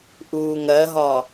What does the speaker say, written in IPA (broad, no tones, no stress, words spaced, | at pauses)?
ʔuːŋɜɦɒ